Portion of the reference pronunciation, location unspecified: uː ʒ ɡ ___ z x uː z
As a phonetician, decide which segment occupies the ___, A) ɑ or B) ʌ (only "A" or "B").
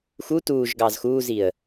A